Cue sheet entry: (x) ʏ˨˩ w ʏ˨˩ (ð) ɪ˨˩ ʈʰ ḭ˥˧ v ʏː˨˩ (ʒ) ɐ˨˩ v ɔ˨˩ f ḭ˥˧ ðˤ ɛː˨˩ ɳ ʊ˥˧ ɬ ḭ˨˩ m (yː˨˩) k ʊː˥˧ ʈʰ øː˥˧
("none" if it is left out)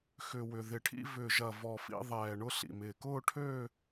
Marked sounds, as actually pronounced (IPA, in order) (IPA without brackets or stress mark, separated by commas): x, ð, ʒ, ɪː˨˩